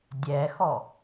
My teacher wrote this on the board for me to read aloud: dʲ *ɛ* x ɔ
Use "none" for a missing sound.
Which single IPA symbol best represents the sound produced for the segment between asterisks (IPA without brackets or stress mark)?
ɛ